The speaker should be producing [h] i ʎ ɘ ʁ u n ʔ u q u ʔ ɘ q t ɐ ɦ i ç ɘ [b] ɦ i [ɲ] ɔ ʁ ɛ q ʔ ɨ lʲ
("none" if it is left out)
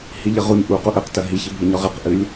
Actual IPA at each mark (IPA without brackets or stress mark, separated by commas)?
h, b, ɲ